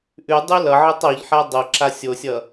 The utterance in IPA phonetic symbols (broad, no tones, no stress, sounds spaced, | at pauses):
ʔ ʉ dˤ ʉ l ʌ ʕ ɯ tˤ ɔ ʎ ħ a dˤ ʌ ǁ a sʲ o sʲ ʌ